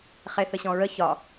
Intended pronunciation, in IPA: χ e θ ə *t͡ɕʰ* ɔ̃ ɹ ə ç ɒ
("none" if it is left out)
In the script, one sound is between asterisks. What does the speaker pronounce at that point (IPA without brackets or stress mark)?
ɕ